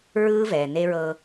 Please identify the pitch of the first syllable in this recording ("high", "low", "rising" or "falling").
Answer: high